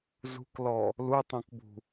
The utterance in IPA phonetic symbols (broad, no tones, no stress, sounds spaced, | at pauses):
z ṳ k l ɔ | l u tˤ õ k b ṳ